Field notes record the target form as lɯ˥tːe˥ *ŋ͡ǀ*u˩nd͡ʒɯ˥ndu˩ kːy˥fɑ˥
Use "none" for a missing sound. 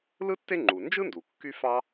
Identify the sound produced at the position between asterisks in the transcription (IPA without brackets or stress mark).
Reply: ŋ͡ǃ